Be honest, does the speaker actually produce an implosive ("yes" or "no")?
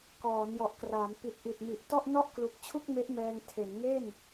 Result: no